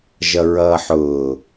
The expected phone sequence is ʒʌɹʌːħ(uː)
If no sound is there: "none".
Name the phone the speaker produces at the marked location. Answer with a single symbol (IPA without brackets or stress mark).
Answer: ʊː